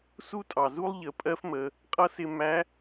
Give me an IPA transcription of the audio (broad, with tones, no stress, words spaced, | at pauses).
su˥tʼɑ˩zu˥lˠ ʎə˩˧pʼɜ˥fmə˩˧ | qʼʌ˥sɪ˧ mæ˧˥